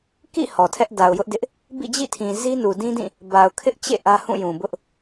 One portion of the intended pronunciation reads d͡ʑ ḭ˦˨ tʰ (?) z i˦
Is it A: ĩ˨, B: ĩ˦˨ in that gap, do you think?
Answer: A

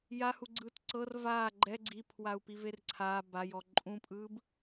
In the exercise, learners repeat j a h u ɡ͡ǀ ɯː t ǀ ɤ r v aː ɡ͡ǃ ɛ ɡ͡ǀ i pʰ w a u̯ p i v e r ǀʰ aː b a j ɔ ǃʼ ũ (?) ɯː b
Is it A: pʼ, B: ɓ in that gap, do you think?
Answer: A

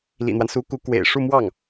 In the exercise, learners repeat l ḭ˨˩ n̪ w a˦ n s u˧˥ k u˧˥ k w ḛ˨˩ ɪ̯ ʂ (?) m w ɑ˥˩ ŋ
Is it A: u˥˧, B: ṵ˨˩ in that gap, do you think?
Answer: A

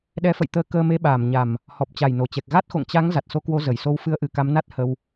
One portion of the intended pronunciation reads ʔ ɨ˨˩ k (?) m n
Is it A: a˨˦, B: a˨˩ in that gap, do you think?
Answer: A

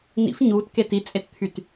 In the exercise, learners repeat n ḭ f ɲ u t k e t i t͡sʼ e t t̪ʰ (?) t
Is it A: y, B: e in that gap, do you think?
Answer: A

